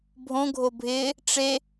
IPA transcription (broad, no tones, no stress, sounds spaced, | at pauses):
bʱ õ ɡʱ o bʱ ɪː | ʈ͡ʂ e